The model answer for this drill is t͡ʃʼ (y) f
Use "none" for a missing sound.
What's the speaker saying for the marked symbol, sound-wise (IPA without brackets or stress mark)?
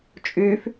y